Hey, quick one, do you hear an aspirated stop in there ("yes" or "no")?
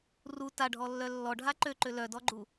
no